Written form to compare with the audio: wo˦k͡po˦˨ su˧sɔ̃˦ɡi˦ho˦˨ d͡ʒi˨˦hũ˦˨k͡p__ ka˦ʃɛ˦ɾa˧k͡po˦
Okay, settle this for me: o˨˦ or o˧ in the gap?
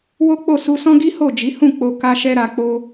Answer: o˧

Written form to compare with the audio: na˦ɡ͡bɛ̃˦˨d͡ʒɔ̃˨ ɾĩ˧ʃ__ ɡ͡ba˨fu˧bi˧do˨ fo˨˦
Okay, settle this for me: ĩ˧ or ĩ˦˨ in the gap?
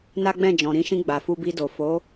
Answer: ĩ˧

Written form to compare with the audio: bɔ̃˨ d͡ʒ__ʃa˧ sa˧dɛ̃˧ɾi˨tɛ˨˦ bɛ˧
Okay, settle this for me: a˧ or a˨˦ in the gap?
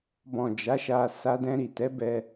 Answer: a˨˦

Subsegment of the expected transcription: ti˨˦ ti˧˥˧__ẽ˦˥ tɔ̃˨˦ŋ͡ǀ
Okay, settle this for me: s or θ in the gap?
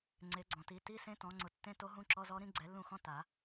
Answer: s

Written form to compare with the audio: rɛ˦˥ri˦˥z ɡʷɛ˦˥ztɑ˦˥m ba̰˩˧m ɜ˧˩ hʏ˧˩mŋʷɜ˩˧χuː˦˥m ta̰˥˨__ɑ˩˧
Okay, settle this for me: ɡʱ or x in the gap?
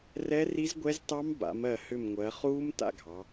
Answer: ɡʱ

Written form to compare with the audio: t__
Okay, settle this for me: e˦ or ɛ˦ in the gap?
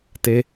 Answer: e˦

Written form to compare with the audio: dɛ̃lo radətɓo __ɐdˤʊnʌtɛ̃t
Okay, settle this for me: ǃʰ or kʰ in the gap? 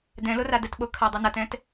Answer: kʰ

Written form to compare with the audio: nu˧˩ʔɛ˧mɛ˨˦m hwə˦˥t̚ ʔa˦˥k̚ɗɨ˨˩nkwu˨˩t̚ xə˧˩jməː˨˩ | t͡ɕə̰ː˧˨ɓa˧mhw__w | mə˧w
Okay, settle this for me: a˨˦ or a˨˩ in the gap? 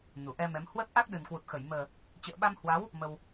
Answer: a˨˦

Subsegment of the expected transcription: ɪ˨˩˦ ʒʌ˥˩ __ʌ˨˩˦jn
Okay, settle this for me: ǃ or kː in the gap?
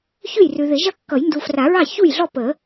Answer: kː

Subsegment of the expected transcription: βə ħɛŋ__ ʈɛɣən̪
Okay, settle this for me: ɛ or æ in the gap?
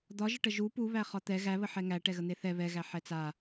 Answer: æ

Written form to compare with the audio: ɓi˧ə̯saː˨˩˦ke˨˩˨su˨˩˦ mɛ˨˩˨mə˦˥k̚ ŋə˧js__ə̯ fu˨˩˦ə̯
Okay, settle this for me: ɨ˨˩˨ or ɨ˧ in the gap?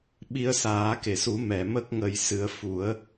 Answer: ɨ˧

